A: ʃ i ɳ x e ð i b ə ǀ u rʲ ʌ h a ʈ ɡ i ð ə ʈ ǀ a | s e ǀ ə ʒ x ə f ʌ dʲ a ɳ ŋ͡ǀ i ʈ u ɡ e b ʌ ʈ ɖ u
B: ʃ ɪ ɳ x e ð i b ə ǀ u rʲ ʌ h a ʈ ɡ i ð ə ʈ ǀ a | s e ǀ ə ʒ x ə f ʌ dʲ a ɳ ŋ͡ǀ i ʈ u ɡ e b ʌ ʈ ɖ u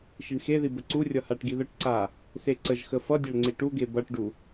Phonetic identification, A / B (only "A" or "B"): A